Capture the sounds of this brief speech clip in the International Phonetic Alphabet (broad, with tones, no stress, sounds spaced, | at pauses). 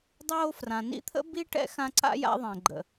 dˤ oː˦ f r ã˩ n ḭ˦ t̪ʰ ə̰˥ b i˦ ʈ ɛ̰˦ x ã˦ ǀ a̰˥ j a̰˦ ðˤ ɛ̃˨ ɡ͡ǃ ə̰˨